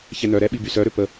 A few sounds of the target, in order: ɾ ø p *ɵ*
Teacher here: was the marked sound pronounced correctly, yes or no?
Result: no